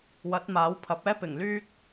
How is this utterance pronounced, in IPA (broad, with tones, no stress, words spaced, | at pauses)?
wɐ˨˥t̚ maː˨˥wpʰɐ˨˥p̚ɛː˥ pɪ˨˩ŋ lyː˥k̚